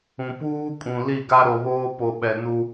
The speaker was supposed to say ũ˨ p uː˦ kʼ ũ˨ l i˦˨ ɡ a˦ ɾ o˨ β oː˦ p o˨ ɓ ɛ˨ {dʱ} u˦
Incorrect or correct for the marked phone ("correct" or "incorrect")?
incorrect